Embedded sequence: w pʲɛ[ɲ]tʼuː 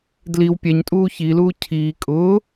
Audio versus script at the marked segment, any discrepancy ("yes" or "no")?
no